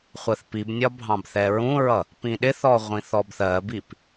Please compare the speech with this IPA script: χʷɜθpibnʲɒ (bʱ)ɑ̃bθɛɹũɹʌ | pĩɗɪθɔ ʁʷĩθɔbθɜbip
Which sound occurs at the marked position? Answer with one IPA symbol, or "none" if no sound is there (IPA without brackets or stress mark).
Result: bʱ